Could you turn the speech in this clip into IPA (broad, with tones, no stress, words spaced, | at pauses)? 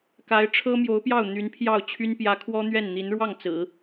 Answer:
ka˧˥ɪ̯ ʈ͡ʂʰɤ˥mjo˧˥ʊ̯pjɑ˥˩ʊ̯ n̪y˧˥npʰjɑ˥˩ʊ̯t͡ɕʰy˥n pjä˧˥ kʰwɔ˥n̪ɥɛ˥˩nn̪i˧˥n ɻwɑ˥˩ŋt͡sɹ̩˨˩˦